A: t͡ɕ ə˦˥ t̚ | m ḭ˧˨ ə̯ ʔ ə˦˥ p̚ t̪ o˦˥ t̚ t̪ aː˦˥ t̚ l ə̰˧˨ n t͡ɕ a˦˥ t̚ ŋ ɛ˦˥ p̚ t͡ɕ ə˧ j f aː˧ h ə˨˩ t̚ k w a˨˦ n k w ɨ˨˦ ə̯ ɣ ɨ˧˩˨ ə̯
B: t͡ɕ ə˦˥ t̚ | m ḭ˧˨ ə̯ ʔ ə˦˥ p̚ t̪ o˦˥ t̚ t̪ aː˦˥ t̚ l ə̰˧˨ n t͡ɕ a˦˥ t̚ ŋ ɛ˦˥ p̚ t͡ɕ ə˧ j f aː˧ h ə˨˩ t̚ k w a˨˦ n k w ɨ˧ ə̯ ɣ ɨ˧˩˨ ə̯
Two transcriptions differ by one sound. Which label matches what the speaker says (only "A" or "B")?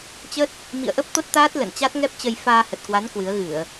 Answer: A